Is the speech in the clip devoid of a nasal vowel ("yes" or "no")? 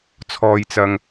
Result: yes